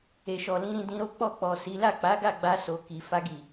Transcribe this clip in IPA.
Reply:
e˨ʃɔ˨lĩ˧ ɾĩ˧dĩ˧ɾo˦ k͡pɔ˦˨k͡pɔ˨ si˨˦ la˦˨k͡pa˨˦ɡa˦˨ ɡ͡ba˧so˨ ki˨fa˧ɡi˨

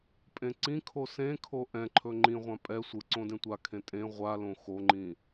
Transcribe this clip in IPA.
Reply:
pʼẽǀĩkʰo sẽkʰo ʔɛ̃ǃʰɵ ŋ͡ǃĩʁʷã pʼɛ sʷɯ ǀõdẽtʷakʰẽ tʼẽ ʁʷalõ xoŋ͡ǃĩ

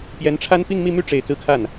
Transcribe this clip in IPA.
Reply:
pjɛ˧˥nʈ͡ʂʰa˥n pi˥˧ŋmi˥˧my˥˩ʈ͡ʂe˨˩ɪ̯ t͡sɹ̩˥˧kʰa˥˩n

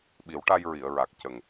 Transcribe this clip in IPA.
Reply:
ɓi˨˩˦wʈa˧jɹi˨˩˨ə̯ ɹa˨˩k̚ cə˨˩ŋ

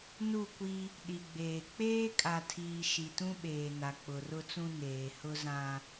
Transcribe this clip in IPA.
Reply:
nu˦˨kʷi˦ | ɗi˨ɡ͡beː˨ k͡peː˦kʼa˨tʰiː˨ ʃi˨tũ˦ɓeː˨ na˨k͡pʊ˨rʊ˦t͡sũ˦ neː˨hʊ˦zã˦

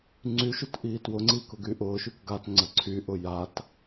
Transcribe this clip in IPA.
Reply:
ŋ͡ǀyʃut ʔiːtwʊŋ͡ǀiːk ʊɡyʔʊːʃyk ɡatŋ͡ǀə ǀʰyʔʊ jat

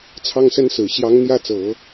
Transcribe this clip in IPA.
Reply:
t͡sʰɑ˥ŋsə˥nsɹ̩˨˩ ɕjɑ˧˥ŋn̪jä˥˩t͡sɤ˨˩˦

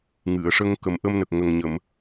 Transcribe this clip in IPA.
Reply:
ŋɨ˨˩˨ə̯ʂə˧ŋkə˨˩m ʔə˧mnə˨˩k̚ŋə˨˩ŋɲə˨˩˨m

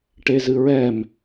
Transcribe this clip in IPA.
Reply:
ʈezɨɹɛm

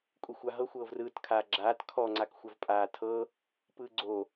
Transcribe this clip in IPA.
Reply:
kʼuxʷaɦɤ xʷɤːvrɯːt kʰaːɡ͡ǁaːt kʰɔ ŋ͡ǀakxʷavpʼaːtʰɤ | pɯɡ͡ǀo

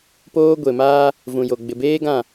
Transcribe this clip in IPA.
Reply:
poː˦ ɡʷe˨maː˦ | vũ˨jo˨ ɡ͡bɪ˨beː˦ɡã˦˨

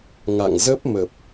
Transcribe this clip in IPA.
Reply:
ŋa̰˧˨ŋzə˦˥p̚mə˨˩p̚

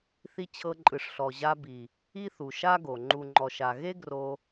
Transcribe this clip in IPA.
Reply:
θi˧ t͡ɕʰɤ˧ǃʼɯ˨ʂɬɔ˨ ʑa˧bi˨ | i˦θu˨ʃa˦ɡo˨ ŋ͡ǃu˨ŋ͡ǃɔ˨ʃa˨ ɣe˦ɡro˧

